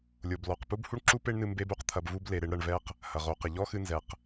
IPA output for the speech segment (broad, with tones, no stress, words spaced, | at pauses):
lʲo˨blɔ˨q pu˦bhu˦ɳǁu˦pe˦ɳ nɨ˧ mbe˦bu˧qt̪ʰɐ˧b vu˧ble˨ɾe˧ɳ ɾɐ˧ɳvɛ˦q | hɐ˨ʁo˨˦qɘ˨ ʎɔ˦xɨ˧ nzɛ˨q